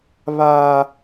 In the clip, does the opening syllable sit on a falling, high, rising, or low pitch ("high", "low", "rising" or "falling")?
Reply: high